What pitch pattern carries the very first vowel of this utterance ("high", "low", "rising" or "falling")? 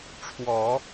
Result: low